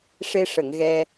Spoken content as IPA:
ʂe˧ʂə˨˩˨ŋɣɛ˧

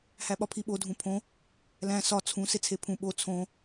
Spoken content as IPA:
hæɓɒpʰiɓo dʱũpʰõ | læ̃ sɒ t͡sʰũ set͡sʰepʰũ ɓo t͡sʰõ

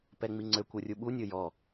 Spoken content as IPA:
pɛŋ͡miŋ͡ǀøkʷ orʲuɓu nʲojɔ

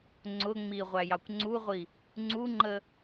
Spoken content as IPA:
ŋ͡ǀʊ ŋ͡miʁʷæjɑkʷ ŋ͡ǀuʁʷi | ŋ͡ǀuŋ͡ǃə

